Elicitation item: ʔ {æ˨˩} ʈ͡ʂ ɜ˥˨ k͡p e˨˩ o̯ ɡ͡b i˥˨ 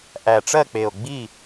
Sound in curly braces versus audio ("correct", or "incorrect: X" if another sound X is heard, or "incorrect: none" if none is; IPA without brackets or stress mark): correct